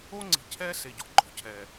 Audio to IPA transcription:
o˦ ŋ͡ǀ i̤˨ cʰ ɛ˦ s e˨ ɟ ɔ̤˨ ɡ͡ǃ ɔ̤˨ cʰ ɛ˨

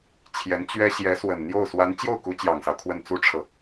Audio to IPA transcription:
t͡ɕʰ j ɛ˧˥ n t͡ɕ ɥ ɛ˥ ɕ j ɛ˧˥ s w ə˨˩ n n̪ j o˥˩ ʊ̯ s w a˧˥ n t͡ɕ j o˥˩ ʊ̯ k u˧˥ t͡ɕ j ɑ˨˩ ŋ s ɑ˦ ʊ̯ kʰ w ə˥˩ n t͡s u˥ ʈ͡ʂʰ ɤ˨

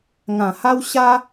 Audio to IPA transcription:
ŋ ã˨˩ h a˦ w ɕ a˦

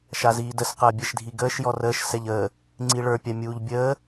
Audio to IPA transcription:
ʃ a z iː d ə s q əː bʲ ɛ ʃ dʱ i ɡ əː ʃ j ɔ r əː ʃ s ɛ ʎ əː | ŋ͡ǀ i ɭ ə˞ pʲ a mʲ uː ʎ bʲ əː

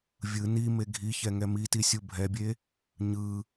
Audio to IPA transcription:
vʲ ɯ n i m e ɡʱ i ç ɛ ŋ ɛ m i t i sʲ u bʱ ɛ bʲ e | ɲ ɯ

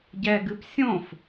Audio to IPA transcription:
ɟ ɛ ɡ ɨ p sʲ õ f

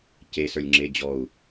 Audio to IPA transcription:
c e s ə˞ lʲ ŋ͡ǁ e d͡ʑ ɔ u̯

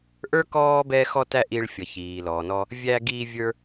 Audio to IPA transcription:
ʔ ə˞˥ k ɔː˥ b ɛ˧ x ɔ˧ t æ˧ ʔ i˧ ɭ fʲ ʌ˩ ç iː˩ l ɔː˩ n ɔ˧ | vʲ æː˧ ɡ iː˧ vʲ ə˞˧

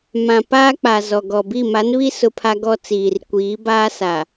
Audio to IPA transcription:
m ã˨ p aː˦ k͡p a˨ z ɔ˨ ɡ ɔ˨ b i˦˨ m a˨˦ n β i˦ s ʊ˦ pʰ a˦ ɡ ɔ˦ t͡s iː˨ r kʷ iː˨˦ b aː˦ s a˨

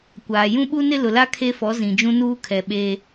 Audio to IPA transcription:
kʷ aː˨ j ũ˦ ɓ u˦ n ɪ˦ l ʊ˨ l a˦ kʰ e˦ f ɔ˨˦ z ĩ˨ d͡ʒ ũ˦ n uː˦ kʰ ɛ˨ ɓ eː˦

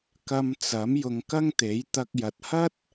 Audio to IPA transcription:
k ɐ˧ m t͡s ɐ˨˥ m j ʊ˧ ŋ k ɐ˥ ŋ t̪ e˨˥ j t̪ ɐ˧ k̚ j ɐ˨ t̚ h ɐ˥ t̚

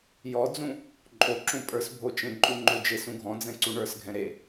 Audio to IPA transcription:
j ɔ d͡z ũ | ǃʼ o ǁ ũ pʼ ə˞ s bʱ o t͡ʃ ẽ ǃʼ u ŋ͡ǃ o d͡ʒ e s ũ ɡʱ ɔ̃ d͡z ɛ̃ ǀ u ɳ ə˞ s ɡʱ ɛ̃ ɾ e

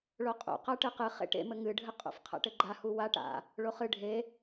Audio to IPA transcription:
ɭ o qʼ ṵ q a ʈ ɨ q ɨ χ ḛ ʈ ḛ m ɘ ŋ ɨ ɖʱ ɘ qʼ ṵ f qʰ a̰ ʈ ɘ ɡ͡ǃ a h u w a ʈ a̰ | ɭ o χ ɨ ɖʱ e

